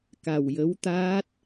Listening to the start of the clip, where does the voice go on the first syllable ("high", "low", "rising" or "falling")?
low